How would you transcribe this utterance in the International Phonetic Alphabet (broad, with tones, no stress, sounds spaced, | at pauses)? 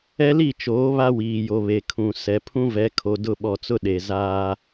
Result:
ɛ˦ l i˦˨ t͡ʃ oː˨˦ β a˦ w iː˨ j o˨ β e˨ kʰ ũ˨ s ɛ˨ pʰ ũ˦ v ɛ˨˦ kʰ o˨ d ʊ˦˨ ɓ ɔ˨ t͡s ʊ˦ ɗ e˨ z aː˦